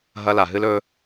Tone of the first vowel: high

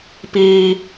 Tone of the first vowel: high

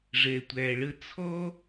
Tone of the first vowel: low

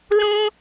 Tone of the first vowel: high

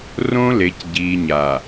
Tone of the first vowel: high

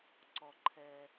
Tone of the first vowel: low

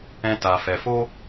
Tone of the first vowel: high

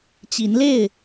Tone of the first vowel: rising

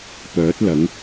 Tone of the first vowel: rising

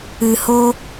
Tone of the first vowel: low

